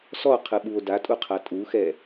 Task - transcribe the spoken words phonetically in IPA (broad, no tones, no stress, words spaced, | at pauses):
sɔqʰɯɓuo̯ datʼuqʰa tʼuxɛ